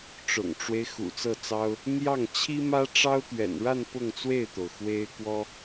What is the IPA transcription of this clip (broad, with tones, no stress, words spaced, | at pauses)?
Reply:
ʈ͡ʂʊ̰˨˩ŋʈ͡ʂwe˦ɪ̯ xṵ˨˩t͡sɤ˥˩t͡sɑ˥ʊ̯ | n̪jɑ˥˩ŋ t͡ɕʰi˥mä˥ʈ͡ʂɑ˥ʊ̯ t̪ɥɛ̰˨˩nɻa˥˧n pʊ˥˧ŋt͡swe˥˩ɪ̯t̪o˩ʊ̯ xwe˥ɪ̯ kwɔ˥